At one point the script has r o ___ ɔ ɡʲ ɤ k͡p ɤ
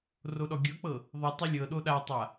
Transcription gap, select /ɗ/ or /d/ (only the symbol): ɗ